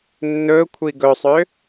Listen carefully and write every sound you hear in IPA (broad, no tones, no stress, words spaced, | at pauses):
nːɵ kʷʰiɡɵsˤø